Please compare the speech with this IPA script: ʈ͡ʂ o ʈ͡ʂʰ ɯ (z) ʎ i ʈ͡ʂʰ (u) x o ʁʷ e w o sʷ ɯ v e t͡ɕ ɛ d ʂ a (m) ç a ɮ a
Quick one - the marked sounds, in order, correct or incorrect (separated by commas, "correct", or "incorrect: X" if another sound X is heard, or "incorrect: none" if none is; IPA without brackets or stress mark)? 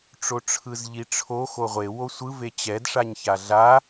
correct, incorrect: o, incorrect: ɲ